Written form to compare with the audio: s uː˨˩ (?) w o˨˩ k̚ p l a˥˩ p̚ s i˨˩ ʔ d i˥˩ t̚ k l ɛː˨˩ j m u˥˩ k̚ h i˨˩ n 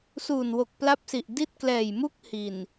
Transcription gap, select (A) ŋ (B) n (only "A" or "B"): B